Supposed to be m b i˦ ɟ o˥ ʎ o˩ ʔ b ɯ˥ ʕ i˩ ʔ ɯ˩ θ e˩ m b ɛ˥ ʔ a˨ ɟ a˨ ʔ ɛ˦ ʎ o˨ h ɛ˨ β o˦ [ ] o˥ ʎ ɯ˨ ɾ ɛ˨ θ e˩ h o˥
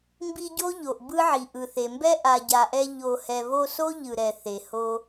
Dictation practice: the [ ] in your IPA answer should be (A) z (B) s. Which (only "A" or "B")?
B